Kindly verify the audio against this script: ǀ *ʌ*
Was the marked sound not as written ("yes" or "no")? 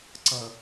no